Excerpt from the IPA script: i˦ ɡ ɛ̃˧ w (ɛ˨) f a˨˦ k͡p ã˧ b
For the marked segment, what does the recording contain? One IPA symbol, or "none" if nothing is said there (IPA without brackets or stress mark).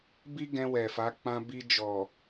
ɛ˨